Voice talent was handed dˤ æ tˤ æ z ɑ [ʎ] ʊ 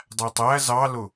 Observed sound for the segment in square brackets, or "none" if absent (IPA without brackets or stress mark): l